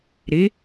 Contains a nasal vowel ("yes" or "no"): no